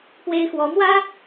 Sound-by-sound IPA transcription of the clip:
p w e˥ ɪ̯ x w ɔ˧˥ m w ä˥

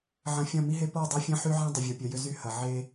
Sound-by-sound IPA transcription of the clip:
ʕ ɐ̃˨ fʲ ɐ̃˦˨ m i˦ ɦ e˦ p ɔ˦˨ dˤ a˦ fʲ ɐ̃˦ ħ y˦ ʕ ã˦ dˤ ʏ˨ vʲ o˨ pʲ œ˨ j ʏ˦ z y˦ h ɐ˨ ʕ e˦

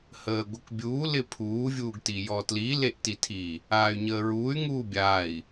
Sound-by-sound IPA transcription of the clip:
h əː ɡʷ ɪ k bʲ uː l ɪ pʰ uː vʲ uː ɡ t i j ɔ t l i l e ʔ t i tʰ i | aː y̯ ɲ əː ɹ uː y̯ ŋ uː bʲ aː i̯

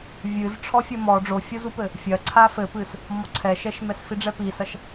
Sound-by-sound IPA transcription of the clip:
vʲ ɨ z ʈ͡ʂʰ ɔ fʲ ɐ m ɔ ɖ͡ʐ o fʲ o z u p ɘ | fʲ ɐ ǀʰ a f ɘ p ɨ s | m ɔ ǀʰ ɛ ʃ ɛ ʃ m ɛ s f i ɖ͡ʐ ɛ p i s ɐ ʃ

